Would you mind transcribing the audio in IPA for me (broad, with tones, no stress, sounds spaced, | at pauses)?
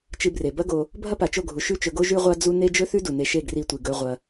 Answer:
t͡ʃ ɨ˧ b r e˨ b ɐ˦ ɡ o˧ | bʱ ɐ˦ p a˨ t͡ʃ o˦˨ ɡʱ u˨ ʃ ʉ˦ t͡ʃ ɵ˧ ɡ o˦ ʒ ʉ˦ ʁʷ a˦ d͡z u˦ n e˦ d͡ʒ ɵ˦ θ ʉ˦ d u˨ n e˧ ʃ e˦˨ ɡ r i˧ tʷ i˨ ɡ ɵ˧ ʁʷ ɐ˧